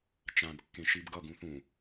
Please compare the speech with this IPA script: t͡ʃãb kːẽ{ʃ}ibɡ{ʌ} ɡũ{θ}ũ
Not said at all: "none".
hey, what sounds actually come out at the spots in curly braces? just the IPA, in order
ʃ, ʌ, θ

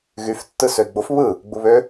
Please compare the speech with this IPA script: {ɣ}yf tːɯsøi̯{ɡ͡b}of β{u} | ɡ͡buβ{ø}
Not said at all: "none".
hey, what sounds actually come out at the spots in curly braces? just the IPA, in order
ɣ, ɡ͡b, ɯ, ø

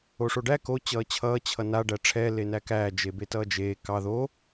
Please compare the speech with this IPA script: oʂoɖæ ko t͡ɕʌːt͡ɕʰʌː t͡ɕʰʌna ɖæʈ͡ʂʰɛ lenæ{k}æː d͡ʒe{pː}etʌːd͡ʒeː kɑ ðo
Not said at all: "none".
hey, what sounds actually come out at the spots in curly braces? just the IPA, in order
k, b

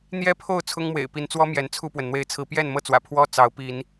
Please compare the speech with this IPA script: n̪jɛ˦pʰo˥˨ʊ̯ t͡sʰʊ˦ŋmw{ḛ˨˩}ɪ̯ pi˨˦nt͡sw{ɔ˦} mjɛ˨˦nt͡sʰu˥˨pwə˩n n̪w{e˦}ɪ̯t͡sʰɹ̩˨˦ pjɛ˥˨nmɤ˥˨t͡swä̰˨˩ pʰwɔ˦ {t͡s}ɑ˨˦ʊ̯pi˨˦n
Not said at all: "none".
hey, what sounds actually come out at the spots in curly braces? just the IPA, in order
ḛ˨˩, ɔ˦, e˨˦, t͡s

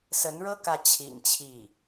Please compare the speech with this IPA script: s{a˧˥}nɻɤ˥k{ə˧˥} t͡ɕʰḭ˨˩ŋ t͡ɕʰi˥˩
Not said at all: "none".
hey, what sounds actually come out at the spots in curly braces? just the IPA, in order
ə˧˥, ä˧˥

